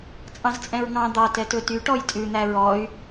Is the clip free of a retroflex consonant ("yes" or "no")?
no